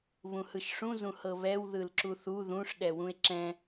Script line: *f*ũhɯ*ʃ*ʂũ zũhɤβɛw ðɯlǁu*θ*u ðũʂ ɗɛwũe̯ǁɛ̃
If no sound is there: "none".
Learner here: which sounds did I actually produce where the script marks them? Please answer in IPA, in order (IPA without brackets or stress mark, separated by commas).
β, ʃ, θ